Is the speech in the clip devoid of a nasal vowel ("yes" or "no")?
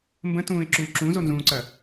no